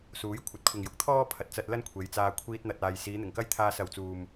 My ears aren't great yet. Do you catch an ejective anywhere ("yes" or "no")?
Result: no